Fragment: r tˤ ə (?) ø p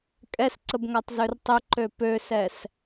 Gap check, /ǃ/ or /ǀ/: ǃ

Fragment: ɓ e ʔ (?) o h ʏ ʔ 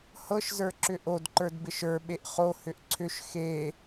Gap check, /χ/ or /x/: χ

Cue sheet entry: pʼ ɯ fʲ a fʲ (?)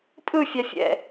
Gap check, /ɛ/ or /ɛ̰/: ɛ̰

